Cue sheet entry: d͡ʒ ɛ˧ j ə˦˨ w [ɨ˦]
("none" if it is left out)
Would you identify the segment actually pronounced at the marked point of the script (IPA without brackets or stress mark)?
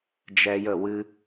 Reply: ɨ˦